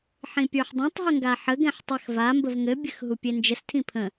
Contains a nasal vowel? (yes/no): yes